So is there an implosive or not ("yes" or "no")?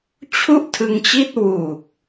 no